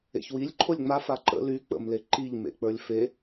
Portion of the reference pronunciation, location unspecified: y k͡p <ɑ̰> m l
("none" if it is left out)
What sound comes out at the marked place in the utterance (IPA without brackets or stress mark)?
ə̰